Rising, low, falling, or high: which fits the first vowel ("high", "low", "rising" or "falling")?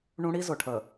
high